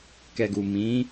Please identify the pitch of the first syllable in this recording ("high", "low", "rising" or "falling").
low